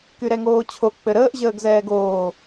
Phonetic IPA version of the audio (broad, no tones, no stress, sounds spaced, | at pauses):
k y ɾ ɛ ŋ oː t͡ɕʰ o k͡p ɘ ɾ əː ʔ ʑ əː ɡ z ɛː ɡ oː